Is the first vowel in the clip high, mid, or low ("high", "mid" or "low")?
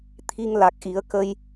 high